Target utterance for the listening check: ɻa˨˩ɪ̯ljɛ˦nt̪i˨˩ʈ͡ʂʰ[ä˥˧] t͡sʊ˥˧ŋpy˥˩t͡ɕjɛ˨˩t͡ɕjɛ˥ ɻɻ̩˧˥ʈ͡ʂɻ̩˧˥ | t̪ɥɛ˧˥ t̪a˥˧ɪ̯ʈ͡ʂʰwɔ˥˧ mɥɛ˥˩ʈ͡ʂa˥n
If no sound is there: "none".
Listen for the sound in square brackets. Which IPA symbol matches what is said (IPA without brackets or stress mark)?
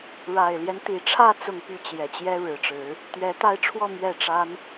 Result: ä˥˧